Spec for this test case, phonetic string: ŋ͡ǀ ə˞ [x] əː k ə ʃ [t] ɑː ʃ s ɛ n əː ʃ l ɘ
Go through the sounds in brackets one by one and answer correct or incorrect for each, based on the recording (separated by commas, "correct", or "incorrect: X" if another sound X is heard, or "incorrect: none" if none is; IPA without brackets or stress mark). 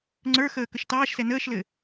correct, correct